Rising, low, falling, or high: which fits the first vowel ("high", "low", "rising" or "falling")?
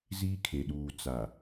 high